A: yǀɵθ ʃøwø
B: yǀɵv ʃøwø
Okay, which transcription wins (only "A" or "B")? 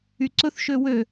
A